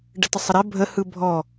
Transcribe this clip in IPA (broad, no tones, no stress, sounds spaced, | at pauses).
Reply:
ɖ ə t ə sˤ ə ɾ ɛ bʱ ə h ɯ bʱ ɔ